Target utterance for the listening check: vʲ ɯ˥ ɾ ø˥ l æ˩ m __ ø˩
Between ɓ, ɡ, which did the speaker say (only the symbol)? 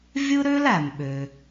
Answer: ɓ